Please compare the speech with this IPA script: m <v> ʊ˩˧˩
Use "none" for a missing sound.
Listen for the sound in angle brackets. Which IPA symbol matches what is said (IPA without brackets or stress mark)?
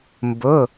b